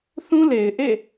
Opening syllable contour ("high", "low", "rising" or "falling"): high